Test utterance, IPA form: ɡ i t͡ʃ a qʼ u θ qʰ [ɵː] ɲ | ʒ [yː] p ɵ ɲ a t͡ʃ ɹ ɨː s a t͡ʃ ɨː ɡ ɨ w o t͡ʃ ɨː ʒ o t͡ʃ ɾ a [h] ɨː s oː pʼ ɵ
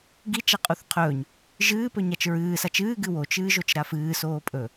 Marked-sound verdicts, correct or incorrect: correct, incorrect, incorrect

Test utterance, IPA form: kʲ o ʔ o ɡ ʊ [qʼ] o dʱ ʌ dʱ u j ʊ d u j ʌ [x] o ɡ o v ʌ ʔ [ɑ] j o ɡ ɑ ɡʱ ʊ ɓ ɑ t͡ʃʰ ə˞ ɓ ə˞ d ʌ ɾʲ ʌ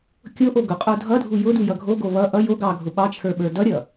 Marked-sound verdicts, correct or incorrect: correct, incorrect, incorrect

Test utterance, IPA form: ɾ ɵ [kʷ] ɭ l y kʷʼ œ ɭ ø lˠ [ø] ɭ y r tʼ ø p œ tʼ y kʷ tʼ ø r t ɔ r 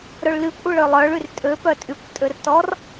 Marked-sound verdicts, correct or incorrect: incorrect, incorrect

